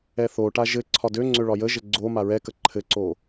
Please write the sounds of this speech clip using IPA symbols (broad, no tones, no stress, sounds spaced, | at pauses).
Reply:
ɛ θ o ʈ a ʒ ɘ ǀʰ ɒ d ø ŋ͡ǀ ø ɭ ɒ j ə ʒ ɘ ɡ͡ǀ o m a ɹ ɛ k ə ǃʰ ɘ ǀ o